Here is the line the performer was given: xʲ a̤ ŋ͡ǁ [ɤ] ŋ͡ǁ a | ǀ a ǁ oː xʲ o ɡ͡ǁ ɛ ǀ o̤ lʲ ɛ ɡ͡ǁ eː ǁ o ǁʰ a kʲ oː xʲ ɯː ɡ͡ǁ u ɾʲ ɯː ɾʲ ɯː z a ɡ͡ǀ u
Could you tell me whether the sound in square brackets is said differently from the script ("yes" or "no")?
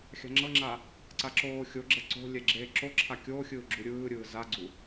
no